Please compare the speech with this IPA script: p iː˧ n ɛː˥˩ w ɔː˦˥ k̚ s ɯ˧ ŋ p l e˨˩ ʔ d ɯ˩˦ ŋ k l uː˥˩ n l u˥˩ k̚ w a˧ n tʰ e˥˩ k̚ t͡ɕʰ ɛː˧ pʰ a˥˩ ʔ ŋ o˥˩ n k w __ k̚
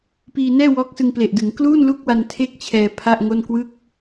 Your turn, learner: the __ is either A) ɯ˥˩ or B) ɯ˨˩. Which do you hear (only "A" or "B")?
A